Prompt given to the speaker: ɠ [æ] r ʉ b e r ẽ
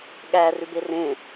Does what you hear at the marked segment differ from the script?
no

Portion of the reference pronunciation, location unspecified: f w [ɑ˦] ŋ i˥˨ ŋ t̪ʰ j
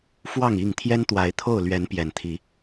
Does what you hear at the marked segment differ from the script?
yes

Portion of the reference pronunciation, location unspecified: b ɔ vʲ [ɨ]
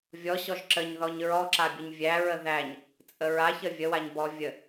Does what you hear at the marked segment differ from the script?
yes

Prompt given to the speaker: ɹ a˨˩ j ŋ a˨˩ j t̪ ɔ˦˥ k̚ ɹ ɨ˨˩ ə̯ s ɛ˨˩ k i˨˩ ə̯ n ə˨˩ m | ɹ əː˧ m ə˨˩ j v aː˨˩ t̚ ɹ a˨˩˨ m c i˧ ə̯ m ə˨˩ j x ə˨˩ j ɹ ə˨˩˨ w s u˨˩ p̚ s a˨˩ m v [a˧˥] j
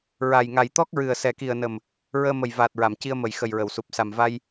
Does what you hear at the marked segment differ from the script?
yes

